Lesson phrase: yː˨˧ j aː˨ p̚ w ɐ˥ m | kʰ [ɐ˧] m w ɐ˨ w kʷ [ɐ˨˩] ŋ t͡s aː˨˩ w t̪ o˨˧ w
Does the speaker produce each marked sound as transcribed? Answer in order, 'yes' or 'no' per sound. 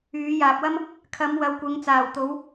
no, no

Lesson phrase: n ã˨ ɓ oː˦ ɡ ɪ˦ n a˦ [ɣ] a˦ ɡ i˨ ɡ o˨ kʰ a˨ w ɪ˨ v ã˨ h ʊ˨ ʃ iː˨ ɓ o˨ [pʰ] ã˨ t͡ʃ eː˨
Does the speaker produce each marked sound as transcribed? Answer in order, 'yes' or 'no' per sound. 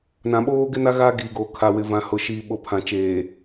yes, yes

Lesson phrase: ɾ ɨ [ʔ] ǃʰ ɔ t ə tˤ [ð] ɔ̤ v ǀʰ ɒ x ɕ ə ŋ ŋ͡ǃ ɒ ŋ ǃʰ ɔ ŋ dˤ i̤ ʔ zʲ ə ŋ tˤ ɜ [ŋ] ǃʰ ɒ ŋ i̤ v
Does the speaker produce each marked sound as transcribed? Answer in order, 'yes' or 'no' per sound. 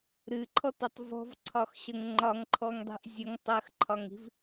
no, no, no

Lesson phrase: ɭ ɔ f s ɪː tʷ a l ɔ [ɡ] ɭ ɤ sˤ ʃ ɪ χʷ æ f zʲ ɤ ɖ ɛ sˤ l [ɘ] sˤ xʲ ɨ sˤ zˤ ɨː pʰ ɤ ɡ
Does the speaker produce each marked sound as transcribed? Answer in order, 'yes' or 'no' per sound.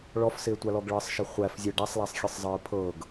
yes, no

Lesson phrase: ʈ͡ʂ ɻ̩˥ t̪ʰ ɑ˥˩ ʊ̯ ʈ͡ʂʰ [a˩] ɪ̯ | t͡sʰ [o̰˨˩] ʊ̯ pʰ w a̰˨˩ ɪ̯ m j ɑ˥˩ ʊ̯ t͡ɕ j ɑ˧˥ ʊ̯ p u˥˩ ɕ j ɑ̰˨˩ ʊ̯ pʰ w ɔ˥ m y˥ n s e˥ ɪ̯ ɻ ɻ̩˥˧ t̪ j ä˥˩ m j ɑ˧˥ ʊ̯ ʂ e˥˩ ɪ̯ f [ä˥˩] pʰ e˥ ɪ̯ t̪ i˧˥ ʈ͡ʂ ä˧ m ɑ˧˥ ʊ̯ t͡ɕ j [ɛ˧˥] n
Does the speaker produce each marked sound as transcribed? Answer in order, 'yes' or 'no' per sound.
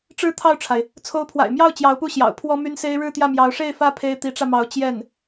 yes, no, no, no

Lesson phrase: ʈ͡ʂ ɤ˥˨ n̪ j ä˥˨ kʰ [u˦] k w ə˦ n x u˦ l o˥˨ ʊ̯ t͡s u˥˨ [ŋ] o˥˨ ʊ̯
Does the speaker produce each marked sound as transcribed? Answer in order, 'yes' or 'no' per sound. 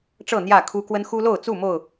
yes, no

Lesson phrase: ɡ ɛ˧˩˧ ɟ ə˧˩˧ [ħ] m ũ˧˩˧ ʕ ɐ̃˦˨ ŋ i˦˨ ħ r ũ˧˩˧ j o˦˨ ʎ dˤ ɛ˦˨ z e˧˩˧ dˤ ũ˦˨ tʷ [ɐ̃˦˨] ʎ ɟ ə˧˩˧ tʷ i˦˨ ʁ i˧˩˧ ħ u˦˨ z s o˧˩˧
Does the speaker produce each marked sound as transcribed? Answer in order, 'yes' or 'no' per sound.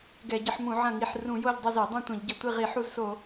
yes, no

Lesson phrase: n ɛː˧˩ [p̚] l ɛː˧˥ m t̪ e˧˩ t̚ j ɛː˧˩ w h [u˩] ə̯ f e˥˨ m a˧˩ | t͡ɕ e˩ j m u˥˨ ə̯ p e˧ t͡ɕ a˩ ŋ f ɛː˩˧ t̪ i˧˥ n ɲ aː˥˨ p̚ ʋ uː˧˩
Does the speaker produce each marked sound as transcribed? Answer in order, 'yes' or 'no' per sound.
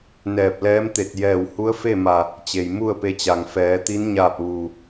yes, no

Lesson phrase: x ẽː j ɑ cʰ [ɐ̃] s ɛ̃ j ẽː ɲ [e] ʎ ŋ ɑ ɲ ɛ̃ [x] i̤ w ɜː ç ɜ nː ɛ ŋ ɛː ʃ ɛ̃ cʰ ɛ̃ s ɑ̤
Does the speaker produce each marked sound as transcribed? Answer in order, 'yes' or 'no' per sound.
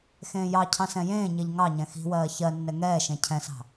no, yes, yes

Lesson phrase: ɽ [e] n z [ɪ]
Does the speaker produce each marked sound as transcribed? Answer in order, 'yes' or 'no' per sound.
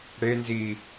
yes, no

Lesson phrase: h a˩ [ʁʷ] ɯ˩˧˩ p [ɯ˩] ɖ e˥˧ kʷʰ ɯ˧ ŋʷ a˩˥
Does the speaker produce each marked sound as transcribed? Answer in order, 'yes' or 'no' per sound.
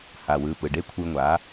no, yes

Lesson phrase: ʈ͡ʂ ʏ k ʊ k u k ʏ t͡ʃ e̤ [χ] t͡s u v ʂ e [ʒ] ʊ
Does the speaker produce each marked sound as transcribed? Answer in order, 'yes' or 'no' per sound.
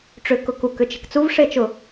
no, no

